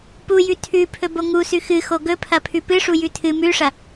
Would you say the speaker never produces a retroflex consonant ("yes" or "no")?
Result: no